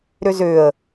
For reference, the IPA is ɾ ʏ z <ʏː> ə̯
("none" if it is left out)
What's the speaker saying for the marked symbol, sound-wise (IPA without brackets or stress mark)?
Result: ʏː